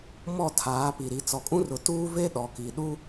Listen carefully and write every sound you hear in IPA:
m ɔ˦˨ tʰ aː˨˦ p i˨ ɾ i˨ t͡s ɔ˨ kʼ ũ˦ r ʊ˨ t uː˦ v e˦ ɗ ɔ˨ k i˨ ɗ u˦

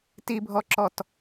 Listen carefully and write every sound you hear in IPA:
t i bʱ ɔ ǁ ɔ t

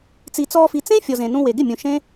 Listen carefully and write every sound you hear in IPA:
t͡s i˨ t͡s ɔː˧ f i˨ t͡s ẽ˦ fʲ ɔ˨ z ẽ˨ n ũ˧ w e˨ ɡ ɪ˦˨ mʲ ũ˨ ʃ ẽ˦

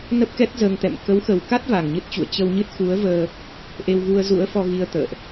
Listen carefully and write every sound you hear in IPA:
n ə˦˥ p̚ k ɛ˦˥ t̚ z əː˧ ŋ t̪ ɛ̰˧˨ m k ə˨˦ w x ə˨˩ w k a˦˥ t̚ v a˨˩ ŋ ɲ ɨ˦˥ t̚ t͡ɕ ṵ˧˨ ə̯ t͡ɕ ə˧ w ɲ ɨ˦˥ t̚ x u˨˦ ə̯ v əː˧ | ʔ e˧ w ɣ u˧ ə̯ z ṵ˧˥ ə̯ f ɔ˧ ɣ i˧ ə̯ t̪ ə̰ː˧˨ ʔ

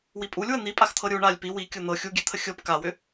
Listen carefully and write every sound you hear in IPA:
w i pʼ u lʲ w ə n̪ i pʼ a x t̪ʰ ɤ ɾʲ u ɳ a lʲ p i w i kʲ ɤ n̪ ɤ xʲ u ɡʲ ɛ t̪ʰ ə xʲ ɤ p k a w ʏ

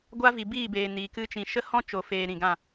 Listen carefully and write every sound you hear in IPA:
ɡʷ a˦ v i˨ b iː˦˨ b eː˨ n iː˨ k ɨ˦ t͡ʃ ĩ˧ ʃ ə˦ h ɔ̃˦ t͡ʃ o˨ f eː˨ ɾ ĩ˨ ɡ ã˦˨

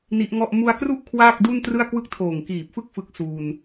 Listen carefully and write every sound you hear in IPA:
n i˦˥ ʔ ŋ ɔ˥˩ ʔ m u˧ a̯ k r u˥˩ ʔ kʰ w aː˥˩ k̚ d u˥˩ n t r ɯ˥˩ a̯ k w ɯ˥˩ k̚ tʰ oː˨˩ ŋ k iː˨˩ p̚ f ɯ˥˩ k̚ f ɯ˦˥ k̚ s uː˧ n

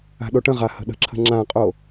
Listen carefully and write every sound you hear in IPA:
a̤ ɗ o ʈ ə̃ ʁ a h ə̤ ɗ ə̤ ǁʰ ə̤ ŋ͡ǁ ã qʼ o

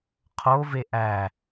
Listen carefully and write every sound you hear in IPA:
qʰ o v e ʔ æ

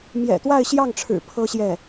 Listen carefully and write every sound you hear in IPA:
m j ɛ̰˨˩ t̪ w a˥˧ ɪ̯ ɕ j ɑ˥˩ ŋ ʈ͡ʂʰ ɻ̩˨˩ pʰ ɤ˥ ɕ j ɛ˥˩

